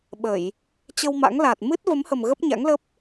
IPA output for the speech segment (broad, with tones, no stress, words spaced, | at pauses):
ɓə˧˩˨j | t͡ɕə˧wma̰˧˥ŋla˨˩t̚ mɨ˦˥t̚və˨˦mhə˨˩m ɣə˦˥p̚ɲa̰˧˥ŋlə˦˥p̚